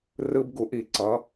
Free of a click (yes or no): no